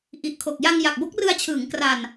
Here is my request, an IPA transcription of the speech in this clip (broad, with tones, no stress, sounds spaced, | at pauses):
ʔ i˨˩ ʔ kʰ o˨˩ k̚ j a˧ ŋ j a˨˩ k̚ b o˦˥ k̚ r ɯ˧ a̯ t͡ɕʰ ɯː˩˦ ŋ k r a˨˩ n